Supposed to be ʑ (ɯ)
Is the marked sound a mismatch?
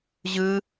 no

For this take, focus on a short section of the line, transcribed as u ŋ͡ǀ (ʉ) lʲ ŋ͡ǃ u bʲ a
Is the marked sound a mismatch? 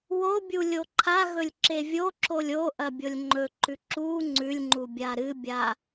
no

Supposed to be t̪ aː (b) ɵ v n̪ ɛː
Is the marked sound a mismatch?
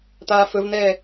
yes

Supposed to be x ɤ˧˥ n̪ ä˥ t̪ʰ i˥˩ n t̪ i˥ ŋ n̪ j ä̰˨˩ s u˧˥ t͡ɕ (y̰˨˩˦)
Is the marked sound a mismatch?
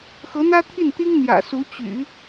no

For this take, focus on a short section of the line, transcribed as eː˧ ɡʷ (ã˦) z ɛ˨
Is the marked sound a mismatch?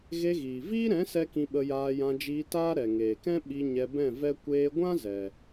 no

